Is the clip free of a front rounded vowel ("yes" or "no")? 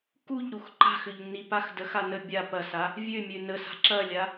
no